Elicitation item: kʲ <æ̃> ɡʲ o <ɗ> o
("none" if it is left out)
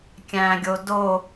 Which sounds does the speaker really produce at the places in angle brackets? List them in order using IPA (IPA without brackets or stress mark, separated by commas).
æ̃, d